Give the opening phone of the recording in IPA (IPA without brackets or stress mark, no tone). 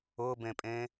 ʊ